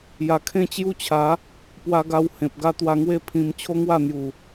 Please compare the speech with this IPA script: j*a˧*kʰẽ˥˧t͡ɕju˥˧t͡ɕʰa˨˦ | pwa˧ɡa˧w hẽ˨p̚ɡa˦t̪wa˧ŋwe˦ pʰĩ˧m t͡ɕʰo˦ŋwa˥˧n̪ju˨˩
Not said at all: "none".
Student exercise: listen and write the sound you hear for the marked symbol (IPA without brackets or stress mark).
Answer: a˨˩